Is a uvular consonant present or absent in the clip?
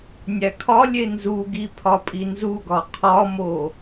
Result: present